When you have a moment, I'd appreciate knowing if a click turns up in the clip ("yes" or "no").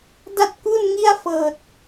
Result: no